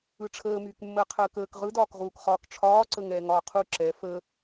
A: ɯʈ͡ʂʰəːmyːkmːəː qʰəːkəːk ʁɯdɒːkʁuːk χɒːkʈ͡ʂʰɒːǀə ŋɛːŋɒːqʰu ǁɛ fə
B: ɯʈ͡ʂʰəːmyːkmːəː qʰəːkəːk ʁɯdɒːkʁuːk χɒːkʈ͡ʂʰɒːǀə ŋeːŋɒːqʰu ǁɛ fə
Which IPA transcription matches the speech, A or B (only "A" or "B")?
A